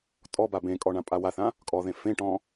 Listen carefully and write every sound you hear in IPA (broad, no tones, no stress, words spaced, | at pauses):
tʼɔba bẽkʼɔ ɳãpʼawaθã | kʼɔðẽ fẽʈɔ̃